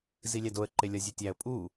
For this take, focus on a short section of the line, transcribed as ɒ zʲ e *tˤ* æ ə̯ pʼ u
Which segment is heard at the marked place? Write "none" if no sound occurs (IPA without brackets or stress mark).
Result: tʲ